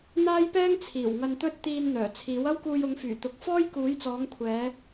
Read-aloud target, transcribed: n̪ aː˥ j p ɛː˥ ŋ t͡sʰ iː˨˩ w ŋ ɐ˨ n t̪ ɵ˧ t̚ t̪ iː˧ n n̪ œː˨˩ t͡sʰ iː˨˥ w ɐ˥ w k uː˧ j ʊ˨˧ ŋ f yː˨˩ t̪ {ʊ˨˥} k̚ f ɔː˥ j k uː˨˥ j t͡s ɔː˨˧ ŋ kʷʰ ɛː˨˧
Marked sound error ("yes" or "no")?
no